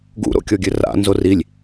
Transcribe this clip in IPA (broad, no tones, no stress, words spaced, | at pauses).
ɡṵɾo̰kʲɔɡʲɘ ra̰ nzorilʲ